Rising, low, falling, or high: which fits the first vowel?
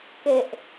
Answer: low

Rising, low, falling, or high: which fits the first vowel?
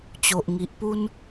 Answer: low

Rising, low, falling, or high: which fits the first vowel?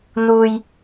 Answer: low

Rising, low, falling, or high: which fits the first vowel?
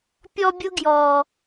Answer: high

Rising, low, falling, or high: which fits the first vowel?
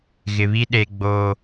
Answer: low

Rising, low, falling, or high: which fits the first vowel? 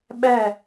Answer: falling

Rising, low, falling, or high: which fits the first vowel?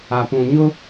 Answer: low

